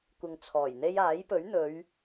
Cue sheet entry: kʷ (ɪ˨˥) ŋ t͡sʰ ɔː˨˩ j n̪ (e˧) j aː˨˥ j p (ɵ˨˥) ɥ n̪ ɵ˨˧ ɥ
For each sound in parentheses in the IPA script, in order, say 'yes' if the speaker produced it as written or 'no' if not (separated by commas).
no, yes, yes